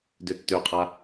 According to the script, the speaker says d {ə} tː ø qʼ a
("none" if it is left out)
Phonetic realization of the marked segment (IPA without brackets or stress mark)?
ø